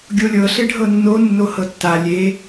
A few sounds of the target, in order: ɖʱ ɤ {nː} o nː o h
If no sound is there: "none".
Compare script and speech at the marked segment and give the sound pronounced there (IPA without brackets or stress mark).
nː